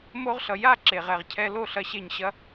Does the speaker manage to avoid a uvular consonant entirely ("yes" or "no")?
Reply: no